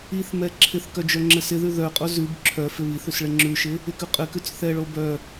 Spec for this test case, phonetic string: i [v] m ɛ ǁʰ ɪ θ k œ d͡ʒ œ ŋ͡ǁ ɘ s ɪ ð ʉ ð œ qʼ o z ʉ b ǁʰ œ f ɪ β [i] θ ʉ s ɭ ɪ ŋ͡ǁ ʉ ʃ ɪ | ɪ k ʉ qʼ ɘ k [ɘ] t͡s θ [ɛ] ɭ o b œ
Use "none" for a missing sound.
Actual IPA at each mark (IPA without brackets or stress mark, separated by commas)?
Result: θ, i, ʉ, ɛ